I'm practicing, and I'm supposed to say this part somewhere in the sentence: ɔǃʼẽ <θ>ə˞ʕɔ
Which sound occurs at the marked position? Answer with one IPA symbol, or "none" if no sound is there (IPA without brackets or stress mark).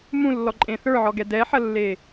θ